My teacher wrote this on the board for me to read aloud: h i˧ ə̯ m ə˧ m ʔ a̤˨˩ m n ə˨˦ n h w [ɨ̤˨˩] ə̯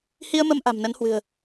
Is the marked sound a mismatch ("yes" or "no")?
no